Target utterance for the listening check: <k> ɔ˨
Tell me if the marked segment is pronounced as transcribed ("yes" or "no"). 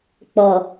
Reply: no